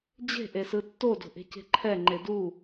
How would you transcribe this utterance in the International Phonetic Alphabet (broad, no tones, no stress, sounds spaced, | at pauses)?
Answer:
d͡ʑ e̤ ʔ e s ɯ tː o d o̤ ʔ e̤ c e̤ ǃʰ ɛ ŋ͡ǃ e d u